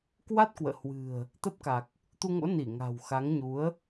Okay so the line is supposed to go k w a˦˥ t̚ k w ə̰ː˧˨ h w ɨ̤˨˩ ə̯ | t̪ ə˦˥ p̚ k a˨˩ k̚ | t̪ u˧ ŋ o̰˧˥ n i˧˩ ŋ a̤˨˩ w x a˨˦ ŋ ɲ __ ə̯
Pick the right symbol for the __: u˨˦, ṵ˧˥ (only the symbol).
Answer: u˨˦